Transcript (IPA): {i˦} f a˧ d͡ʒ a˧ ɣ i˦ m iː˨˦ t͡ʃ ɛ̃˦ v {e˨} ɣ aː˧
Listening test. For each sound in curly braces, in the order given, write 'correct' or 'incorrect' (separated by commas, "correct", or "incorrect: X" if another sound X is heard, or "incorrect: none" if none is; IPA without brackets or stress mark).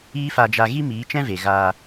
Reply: incorrect: iː˦, correct